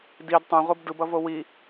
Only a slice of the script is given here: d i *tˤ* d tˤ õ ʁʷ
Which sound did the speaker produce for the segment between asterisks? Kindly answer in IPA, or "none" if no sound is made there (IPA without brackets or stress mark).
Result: none